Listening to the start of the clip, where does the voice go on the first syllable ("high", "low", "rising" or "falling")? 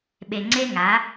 low